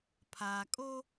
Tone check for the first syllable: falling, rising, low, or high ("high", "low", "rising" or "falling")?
low